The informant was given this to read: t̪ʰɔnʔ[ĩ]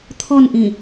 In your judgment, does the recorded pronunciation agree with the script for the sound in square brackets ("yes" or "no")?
yes